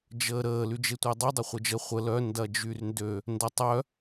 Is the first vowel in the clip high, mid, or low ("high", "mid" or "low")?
mid